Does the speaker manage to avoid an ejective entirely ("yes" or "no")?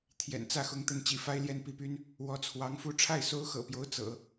yes